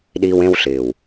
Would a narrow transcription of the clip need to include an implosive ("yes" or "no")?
yes